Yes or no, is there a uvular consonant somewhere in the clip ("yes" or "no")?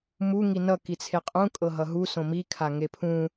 yes